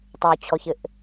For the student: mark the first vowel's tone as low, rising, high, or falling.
low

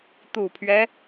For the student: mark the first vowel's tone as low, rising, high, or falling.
low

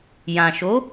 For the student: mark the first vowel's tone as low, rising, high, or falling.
low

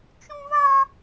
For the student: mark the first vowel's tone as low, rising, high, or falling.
high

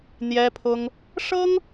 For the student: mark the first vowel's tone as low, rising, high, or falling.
high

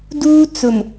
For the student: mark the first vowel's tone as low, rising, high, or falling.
high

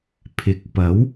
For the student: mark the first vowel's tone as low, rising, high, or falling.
low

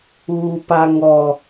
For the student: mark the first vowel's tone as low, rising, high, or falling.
low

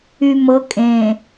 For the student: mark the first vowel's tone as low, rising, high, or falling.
low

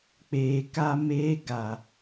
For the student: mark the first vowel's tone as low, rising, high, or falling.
low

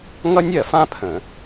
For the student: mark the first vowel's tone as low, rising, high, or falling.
high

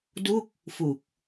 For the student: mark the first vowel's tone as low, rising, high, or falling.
falling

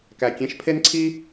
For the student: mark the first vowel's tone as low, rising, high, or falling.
low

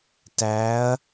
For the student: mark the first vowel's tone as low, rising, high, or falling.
rising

